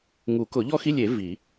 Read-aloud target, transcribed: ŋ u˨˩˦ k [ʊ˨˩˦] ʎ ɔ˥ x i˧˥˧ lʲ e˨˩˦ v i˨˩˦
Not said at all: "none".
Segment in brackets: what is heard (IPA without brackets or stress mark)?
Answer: ʊ˨˩˦